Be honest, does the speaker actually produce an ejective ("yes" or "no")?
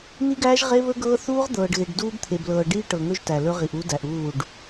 no